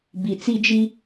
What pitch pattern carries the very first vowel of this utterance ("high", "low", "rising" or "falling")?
low